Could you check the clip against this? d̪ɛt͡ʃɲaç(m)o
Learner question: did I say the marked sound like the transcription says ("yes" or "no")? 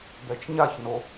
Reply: no